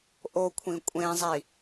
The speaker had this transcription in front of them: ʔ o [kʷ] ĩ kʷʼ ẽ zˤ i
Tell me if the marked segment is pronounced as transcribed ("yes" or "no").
no